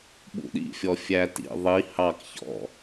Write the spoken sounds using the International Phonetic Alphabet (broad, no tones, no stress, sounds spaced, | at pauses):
ɓ ṵ ɗ ḭ fʲ ɔ fʲ æ t ḭ ðˤ i h ɑ k ç ɔ̰